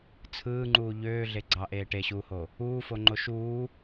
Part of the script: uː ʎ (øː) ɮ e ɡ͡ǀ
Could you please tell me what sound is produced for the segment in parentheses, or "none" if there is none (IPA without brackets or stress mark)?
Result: øː